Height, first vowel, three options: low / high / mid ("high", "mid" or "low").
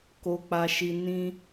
mid